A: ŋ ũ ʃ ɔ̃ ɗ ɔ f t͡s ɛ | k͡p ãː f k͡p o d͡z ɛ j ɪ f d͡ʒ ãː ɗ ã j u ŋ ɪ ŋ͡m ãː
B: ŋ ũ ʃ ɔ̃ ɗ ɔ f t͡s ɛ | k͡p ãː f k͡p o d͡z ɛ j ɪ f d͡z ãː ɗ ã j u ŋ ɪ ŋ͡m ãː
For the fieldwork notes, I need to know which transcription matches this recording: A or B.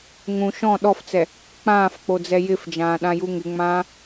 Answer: A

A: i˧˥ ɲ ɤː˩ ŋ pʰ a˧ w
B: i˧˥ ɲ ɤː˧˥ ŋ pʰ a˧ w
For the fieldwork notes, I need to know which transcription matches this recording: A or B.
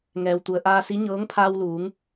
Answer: B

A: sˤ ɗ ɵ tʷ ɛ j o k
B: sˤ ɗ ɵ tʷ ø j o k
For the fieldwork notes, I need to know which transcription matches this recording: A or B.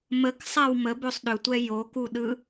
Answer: A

